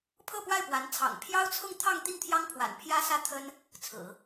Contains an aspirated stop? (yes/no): yes